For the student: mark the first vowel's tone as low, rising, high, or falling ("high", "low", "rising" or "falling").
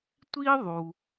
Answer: high